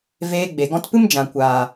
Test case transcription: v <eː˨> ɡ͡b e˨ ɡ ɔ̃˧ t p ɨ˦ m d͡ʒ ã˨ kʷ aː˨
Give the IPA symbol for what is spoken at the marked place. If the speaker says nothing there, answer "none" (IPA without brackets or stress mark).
eː˧